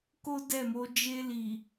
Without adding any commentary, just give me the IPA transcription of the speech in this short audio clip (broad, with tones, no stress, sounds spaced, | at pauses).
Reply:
k o˦ d ɛ˦˨ m o˨˦ d͡ʒ e˧ l i˨